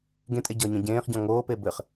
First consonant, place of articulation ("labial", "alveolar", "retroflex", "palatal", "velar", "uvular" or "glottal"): velar